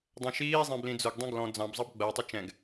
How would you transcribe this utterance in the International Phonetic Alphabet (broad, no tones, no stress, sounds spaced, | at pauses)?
dˤ ɛ̃ ʃ iː zˤ ɛ̃ b l ĩ d͡z ʊ ɡ dˤ ɛ̃ ɡ l ɔ̃ d͡z ɑ̃ b zˤ ɑ b ɡ͡b ɜ tˤ ʌ t͡ʃ ɛ̃ ɡ